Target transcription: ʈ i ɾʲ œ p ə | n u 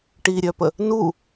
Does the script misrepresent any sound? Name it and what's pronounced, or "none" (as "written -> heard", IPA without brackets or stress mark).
none